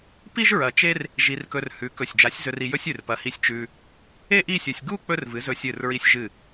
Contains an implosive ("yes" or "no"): no